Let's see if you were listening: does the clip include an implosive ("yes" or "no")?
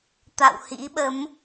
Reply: yes